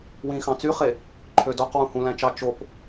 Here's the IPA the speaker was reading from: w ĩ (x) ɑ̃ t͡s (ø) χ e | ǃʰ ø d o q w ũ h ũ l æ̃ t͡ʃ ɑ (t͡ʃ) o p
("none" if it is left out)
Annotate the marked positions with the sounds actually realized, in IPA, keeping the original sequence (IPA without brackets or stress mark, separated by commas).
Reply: x, y, t͡ʃ